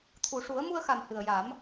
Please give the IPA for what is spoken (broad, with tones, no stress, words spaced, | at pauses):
t̪ʰu˨˩ʂu˨˩˦ə̯mu˧ə̯xa˨˩m hɨ˨˩ə̯ja˨˩˦m